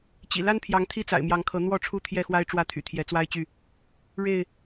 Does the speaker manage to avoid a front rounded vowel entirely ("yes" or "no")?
no